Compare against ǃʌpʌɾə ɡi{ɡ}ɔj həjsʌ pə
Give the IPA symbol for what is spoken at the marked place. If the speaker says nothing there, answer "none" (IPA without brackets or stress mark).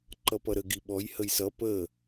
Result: ɓ